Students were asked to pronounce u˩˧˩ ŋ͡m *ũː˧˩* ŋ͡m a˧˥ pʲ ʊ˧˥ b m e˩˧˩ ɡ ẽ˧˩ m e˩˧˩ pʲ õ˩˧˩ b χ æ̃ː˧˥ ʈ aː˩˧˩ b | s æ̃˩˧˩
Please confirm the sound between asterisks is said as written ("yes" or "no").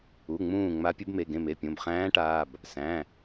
yes